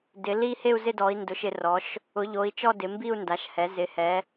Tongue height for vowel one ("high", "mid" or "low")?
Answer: high